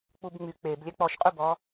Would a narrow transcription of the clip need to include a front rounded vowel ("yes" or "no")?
yes